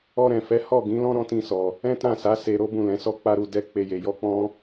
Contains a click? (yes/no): no